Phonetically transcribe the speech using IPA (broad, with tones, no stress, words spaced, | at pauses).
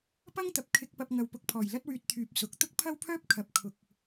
pɐ˥ŋt̪ɐ˨p̚ kʰɪ˧k̚ pɐ˧p̚ŋɐ˨wpʊ˨k̚pʰɔː˨˩j lɐ˥t̚wyː˧t̚t̪ʰyː˨p̚ sʊ˨˥k̚ t̪ʊ˥k̚pʰɐ˥wpʰœː˥p̚ kʰɐ˨p̚ kʰʊ˨k̚